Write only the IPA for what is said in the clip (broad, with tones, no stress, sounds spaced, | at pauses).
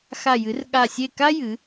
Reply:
x a˦˨ j ɨ˨˥ r ɠ a˦˨ sʲ e˦˨ k a˥ j ɨ˩˧